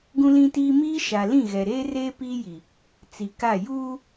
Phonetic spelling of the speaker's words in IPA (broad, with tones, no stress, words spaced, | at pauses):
ɡũ˦lĩ˦tiː˦ miː˦ʃa˨ lĩ˦˨ɣɛ˨ ɾeː˦ reː˦piː˦ji˨ | t͡si˨ka˦˨ juː˦